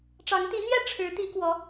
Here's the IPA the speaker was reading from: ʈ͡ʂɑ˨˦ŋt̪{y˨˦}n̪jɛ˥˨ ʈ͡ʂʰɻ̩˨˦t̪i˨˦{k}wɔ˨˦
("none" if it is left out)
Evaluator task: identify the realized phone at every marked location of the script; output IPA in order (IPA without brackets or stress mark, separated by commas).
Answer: i˨˦, k